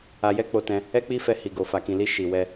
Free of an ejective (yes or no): yes